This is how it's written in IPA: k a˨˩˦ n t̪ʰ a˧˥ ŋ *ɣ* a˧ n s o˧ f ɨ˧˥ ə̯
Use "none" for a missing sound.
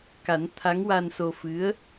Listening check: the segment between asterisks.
w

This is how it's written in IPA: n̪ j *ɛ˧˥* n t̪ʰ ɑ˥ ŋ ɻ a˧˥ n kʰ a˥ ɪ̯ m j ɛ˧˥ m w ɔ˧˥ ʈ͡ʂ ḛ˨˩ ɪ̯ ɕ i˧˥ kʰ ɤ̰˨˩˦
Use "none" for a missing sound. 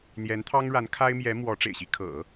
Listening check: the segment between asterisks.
ɛ˧˥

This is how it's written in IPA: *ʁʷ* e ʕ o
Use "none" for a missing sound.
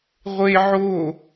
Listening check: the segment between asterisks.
ʁʷ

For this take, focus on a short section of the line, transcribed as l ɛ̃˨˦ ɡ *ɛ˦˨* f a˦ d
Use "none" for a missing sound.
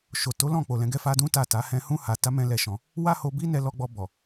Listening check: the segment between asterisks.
ɛ˦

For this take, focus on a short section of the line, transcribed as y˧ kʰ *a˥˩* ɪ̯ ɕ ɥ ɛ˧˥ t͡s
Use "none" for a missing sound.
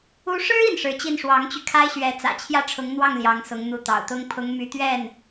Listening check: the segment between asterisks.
a˥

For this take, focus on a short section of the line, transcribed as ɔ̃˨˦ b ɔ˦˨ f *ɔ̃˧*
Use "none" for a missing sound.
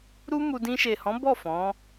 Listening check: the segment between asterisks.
ɔ̃˨˦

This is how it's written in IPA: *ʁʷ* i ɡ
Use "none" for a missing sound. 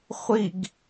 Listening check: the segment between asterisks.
χʷ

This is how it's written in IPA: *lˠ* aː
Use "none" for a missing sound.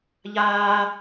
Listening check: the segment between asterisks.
ʎ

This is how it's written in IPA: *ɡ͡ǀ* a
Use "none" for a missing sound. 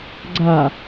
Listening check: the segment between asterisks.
ɡ͡ǀ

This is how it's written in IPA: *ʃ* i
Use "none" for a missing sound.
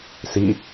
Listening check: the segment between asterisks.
s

